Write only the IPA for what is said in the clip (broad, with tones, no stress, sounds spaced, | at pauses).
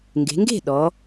ŋ ɡ e̤˩˧ ŋ ɡ e̤˥˨ ɗ ɔ˩˧